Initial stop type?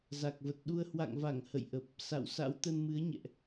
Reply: plain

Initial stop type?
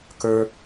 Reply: plain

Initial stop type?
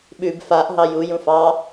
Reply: implosive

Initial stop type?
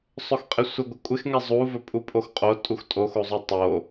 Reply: ejective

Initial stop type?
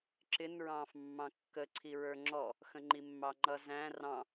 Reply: click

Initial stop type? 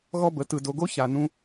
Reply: plain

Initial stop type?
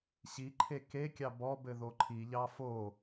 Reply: click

